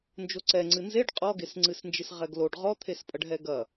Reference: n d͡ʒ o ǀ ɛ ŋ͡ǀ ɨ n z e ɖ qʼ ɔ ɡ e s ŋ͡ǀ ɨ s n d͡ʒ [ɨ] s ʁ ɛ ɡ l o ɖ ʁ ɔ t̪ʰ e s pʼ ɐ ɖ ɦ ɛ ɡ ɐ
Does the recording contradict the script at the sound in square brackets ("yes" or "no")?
no